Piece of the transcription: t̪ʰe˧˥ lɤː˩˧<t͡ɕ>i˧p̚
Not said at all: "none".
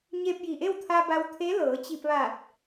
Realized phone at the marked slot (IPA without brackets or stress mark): t͡ɕ